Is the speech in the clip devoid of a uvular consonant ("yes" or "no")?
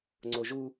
yes